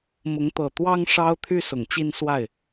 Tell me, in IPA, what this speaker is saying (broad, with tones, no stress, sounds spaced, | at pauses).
m ʊ˨˦ ŋ t̪ ɤ˨˩ t̪ w ɑ˦ ŋ ʂ ɑ˦ ʊ̯ t̪ʰ y˦ s ʊ˨˩ ŋ t͡ɕ i˦ n s w a˥˨ ɪ̯